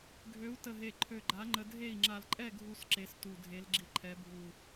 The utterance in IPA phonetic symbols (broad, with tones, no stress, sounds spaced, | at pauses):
ɡʱ ø˨˥ u̯ t ə˧˩ ɦ e˧˩ ǃʰ ø˧˩ ɡ͡ǃ a˨˥ ŋ͡ǃ ə˧ dʱ e˥˨ i̯ ŋ͡ǁ a˧˩ l ǃʼ ɛ˥˨ ɡʱ u˧ s ǁ e˨˥ s t u˧˩ dʱ e˨˥ l ɡ͡ǁ i˨˥ ǃʰ ɛ˨˥ bʱ u˧˩